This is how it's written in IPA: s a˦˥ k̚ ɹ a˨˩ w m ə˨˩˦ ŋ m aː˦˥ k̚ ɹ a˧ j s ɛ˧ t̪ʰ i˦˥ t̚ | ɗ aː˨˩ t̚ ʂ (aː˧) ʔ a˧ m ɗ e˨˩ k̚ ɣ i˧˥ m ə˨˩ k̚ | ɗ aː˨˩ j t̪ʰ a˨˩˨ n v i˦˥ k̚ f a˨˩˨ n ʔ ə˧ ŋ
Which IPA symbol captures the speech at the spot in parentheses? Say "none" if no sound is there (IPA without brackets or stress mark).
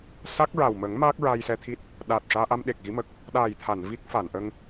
aː˧